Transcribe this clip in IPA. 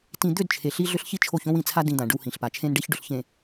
tĩ˨ d̪ʏ˦˨d t͡ʃʰe˨ɬi˦ ɮʏ˦ɬçi˦t͡ʃʰo˦˨ç õ˦wĩ˨t͡sʰa˦ dĩ˨ d̪ã˨ɖʏ˦whĩ˨ɬpa˨ t͡ʃʰẽ˦nɖe˦çɖʏ˨ɬçẽ˨

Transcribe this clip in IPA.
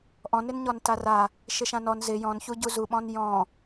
ʔɔ̃nɪn ɲɔntara | ʃɪʃãnɔn zɪ jɔ̃nçu ɟuzuɓɔ̃n jɔ̃

